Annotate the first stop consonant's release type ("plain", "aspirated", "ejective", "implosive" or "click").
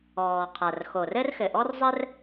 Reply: aspirated